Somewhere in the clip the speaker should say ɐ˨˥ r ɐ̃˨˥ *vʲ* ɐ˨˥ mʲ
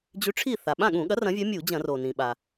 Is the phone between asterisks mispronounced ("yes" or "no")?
no